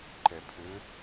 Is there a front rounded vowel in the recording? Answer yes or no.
yes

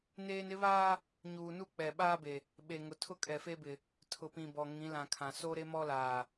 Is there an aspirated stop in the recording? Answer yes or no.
yes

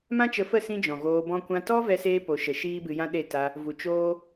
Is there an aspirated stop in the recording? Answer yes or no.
no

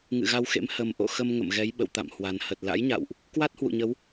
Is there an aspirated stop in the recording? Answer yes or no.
no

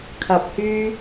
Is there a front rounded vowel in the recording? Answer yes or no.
yes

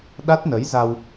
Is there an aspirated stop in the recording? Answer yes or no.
no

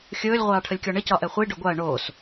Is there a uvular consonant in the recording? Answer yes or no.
yes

